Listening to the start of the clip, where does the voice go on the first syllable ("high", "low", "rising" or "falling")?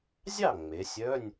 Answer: falling